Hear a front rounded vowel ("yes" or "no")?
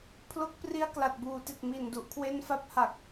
no